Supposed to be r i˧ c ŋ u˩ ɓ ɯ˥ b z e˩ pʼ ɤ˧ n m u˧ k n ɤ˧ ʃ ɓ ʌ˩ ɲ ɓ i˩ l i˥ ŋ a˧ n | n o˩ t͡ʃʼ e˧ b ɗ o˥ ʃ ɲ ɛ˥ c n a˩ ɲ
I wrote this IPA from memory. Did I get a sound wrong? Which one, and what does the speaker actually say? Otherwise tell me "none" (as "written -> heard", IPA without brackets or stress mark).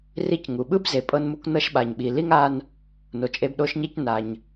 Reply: ʌ˩ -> a˩